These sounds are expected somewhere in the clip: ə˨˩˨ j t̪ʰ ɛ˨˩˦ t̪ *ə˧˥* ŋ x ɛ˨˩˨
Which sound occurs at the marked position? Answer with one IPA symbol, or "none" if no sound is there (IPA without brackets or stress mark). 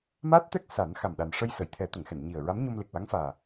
ə˨˩˨